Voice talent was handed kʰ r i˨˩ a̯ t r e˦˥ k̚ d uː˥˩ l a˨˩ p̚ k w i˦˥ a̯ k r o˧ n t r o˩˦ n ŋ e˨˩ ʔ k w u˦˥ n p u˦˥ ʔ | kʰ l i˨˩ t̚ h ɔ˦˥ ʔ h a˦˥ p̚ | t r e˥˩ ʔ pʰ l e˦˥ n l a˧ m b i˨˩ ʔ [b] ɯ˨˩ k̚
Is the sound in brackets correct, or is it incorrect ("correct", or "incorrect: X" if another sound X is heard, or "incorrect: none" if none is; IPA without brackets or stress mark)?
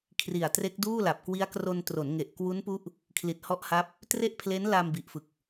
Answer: incorrect: f